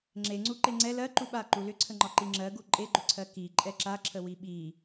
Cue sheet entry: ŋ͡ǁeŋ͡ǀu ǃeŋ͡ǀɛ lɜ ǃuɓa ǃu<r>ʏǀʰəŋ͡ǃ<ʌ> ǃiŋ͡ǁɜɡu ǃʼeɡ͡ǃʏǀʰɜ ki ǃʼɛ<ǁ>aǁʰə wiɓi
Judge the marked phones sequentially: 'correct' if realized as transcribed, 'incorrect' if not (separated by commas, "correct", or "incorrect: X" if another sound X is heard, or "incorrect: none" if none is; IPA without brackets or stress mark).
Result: incorrect: l, incorrect: ɒ, correct